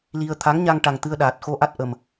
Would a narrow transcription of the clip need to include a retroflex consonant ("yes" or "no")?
yes